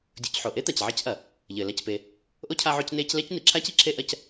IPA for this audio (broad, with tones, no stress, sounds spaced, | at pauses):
dʲ o˨ c ħ o˩ ʔ e˥ t̪ a˩ c ʕ ɛ˦ c ʔ ɐ˩ | ʎ ɘː˩ l a˦ c p e˨ | ʔ o˥ cʰ a˦ ʕ o˦ c n eː˦ c l ɛ˥ c n i˩ ǁʰ aː˥ c i˥ ǁʰ e˦ ʔ ɐ˦ c